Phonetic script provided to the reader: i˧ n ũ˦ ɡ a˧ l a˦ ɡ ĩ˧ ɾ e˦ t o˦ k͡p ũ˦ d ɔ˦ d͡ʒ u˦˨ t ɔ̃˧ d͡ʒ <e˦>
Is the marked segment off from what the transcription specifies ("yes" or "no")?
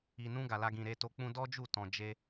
no